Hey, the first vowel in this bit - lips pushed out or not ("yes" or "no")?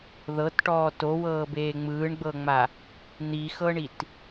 no